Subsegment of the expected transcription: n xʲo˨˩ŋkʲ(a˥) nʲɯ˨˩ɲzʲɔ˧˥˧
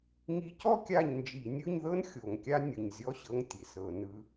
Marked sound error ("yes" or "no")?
no